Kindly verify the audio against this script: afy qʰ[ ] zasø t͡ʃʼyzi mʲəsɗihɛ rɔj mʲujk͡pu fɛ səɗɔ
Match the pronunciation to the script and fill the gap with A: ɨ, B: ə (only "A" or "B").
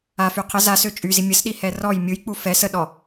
B